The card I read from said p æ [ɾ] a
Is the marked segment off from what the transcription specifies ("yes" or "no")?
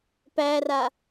yes